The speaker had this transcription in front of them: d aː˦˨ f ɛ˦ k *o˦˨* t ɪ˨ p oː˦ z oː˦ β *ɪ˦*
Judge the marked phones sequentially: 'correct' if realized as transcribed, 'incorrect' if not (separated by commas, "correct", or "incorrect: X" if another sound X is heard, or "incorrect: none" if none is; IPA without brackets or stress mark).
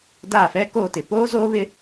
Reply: correct, correct